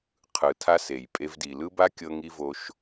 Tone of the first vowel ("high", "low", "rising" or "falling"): low